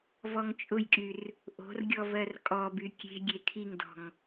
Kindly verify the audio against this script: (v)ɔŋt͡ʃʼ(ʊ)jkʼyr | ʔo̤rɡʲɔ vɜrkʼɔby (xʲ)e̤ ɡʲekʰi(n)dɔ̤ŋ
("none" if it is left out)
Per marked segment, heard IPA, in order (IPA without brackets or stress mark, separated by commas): v, ʊ, kʲ, ŋ